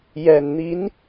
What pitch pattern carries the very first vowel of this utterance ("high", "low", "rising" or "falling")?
low